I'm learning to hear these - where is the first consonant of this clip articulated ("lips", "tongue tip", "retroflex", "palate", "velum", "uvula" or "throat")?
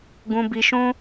velum